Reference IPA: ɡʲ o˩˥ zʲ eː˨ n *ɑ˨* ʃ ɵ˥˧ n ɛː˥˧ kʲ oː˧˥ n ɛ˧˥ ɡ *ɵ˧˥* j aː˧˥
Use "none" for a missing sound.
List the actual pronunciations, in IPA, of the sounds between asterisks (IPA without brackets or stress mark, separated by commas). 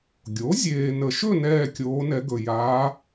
ə˨, ɵ˨